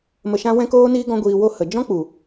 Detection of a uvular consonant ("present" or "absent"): absent